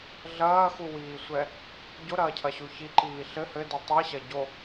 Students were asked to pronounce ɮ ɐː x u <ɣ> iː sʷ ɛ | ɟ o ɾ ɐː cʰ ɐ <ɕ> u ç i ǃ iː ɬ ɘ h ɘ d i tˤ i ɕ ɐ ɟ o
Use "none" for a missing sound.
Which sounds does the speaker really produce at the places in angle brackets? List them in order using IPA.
w, ɕ

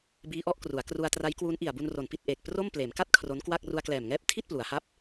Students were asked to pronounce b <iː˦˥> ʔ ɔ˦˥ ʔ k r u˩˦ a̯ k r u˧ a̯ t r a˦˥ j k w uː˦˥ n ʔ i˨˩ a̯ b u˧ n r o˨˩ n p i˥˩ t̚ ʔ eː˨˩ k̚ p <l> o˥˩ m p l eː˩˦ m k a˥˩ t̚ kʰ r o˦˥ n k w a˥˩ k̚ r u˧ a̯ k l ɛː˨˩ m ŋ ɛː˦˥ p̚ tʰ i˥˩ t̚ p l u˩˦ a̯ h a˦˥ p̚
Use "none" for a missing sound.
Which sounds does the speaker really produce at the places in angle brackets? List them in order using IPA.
iː˦˥, r

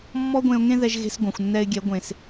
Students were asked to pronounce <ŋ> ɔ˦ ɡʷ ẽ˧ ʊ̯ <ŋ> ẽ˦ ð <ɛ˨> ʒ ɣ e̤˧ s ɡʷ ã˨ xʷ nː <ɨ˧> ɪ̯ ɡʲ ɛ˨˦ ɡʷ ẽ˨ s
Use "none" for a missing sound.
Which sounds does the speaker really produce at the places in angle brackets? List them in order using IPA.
mː, ŋ, ɛ˧, ɛ˧

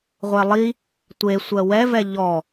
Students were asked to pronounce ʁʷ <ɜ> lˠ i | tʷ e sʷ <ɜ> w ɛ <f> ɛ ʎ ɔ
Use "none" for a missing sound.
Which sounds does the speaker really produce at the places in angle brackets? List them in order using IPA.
ɛ, ɜ, v

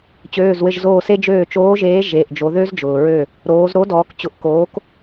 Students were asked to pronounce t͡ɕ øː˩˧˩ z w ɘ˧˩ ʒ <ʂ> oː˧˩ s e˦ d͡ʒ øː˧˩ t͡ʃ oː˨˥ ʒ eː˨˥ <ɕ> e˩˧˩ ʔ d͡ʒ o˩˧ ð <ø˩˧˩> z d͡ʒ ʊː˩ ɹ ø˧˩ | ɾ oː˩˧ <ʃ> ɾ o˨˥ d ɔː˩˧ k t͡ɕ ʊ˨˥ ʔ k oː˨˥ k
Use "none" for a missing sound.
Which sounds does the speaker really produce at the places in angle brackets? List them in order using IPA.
z, ʒ, ø˦, z

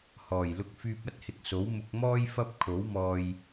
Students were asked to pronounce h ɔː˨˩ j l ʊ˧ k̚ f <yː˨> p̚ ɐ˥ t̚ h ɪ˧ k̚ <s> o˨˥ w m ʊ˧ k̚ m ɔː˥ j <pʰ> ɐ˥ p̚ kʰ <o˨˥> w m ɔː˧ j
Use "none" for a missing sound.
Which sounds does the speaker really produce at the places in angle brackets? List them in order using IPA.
yː˧, s, f, o˨˥

